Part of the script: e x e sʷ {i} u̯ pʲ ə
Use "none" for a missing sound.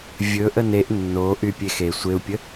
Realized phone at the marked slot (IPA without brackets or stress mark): e